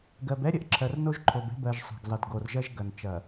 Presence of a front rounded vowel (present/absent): absent